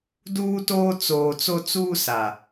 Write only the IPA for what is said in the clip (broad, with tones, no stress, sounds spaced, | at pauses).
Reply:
d uː˦ t oː˦ t͡s oː˨ t͡s o˦ t͡s uː˦ s a˨